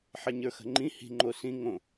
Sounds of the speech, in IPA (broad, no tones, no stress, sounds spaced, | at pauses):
ħ ɛ ɲ ə˞ x ə̤ ŋ͡ǃ ĩ h i̤ ŋ͡ǃ o s ĩ ŋ õ